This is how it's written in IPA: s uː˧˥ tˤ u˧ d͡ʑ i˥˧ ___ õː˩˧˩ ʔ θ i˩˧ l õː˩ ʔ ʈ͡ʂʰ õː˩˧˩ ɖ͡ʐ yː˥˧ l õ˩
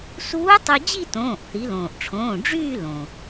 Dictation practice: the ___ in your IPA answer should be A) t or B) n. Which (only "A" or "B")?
A